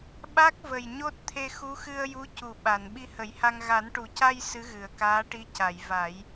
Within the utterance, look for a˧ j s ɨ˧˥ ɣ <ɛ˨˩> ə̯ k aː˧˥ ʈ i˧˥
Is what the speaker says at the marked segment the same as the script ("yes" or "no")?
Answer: no